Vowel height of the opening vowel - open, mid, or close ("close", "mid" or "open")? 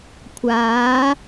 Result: open